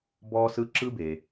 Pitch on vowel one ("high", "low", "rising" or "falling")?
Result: high